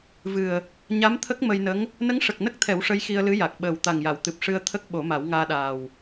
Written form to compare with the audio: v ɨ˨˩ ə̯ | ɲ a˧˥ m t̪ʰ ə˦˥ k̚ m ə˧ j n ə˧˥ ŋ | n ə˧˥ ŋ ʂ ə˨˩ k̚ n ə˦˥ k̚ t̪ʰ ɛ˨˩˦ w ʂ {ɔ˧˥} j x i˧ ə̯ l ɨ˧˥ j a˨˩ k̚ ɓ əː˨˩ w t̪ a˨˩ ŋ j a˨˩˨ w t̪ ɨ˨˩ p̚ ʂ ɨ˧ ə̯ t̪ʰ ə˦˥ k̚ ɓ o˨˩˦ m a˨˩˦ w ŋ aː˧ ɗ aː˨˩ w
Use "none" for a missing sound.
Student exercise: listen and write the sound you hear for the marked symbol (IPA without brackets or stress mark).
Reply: ə˧˥